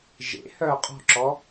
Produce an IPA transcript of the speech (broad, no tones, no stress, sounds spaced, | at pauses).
ʒ ḛ h œː qʼ ɔ̤ ǁ ɔ